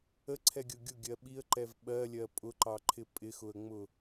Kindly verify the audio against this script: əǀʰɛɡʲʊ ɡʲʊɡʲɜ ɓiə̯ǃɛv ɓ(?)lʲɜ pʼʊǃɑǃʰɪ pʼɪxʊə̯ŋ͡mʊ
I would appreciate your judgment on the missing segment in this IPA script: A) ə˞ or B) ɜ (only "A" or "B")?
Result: B